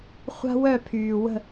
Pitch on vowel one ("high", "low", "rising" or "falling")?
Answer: high